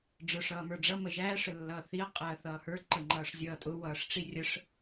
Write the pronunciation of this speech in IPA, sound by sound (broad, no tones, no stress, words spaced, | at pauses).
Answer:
ɖ͡ʐə˞ʂʌːmə˞ɖ͡ʐʌ məʒæːʂ əlːʌːθiɐ̯ qʼæɐ̯θʌːhə˞ ǃəŋ͡ǃʌːʂzʲʌːtʼʊ wʌːʂʈ͡ʂirʲəʂ